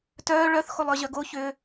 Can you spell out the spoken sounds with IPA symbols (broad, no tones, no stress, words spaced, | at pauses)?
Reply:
tœː ɭœθ xolˠœʑœɡo çʏ